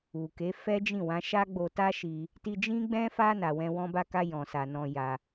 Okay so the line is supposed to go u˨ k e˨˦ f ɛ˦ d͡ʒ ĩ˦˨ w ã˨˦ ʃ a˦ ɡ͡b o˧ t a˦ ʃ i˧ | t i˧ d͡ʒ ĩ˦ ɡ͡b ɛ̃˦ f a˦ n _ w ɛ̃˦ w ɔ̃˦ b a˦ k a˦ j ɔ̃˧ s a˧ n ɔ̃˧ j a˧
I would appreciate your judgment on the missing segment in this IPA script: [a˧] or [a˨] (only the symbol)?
a˧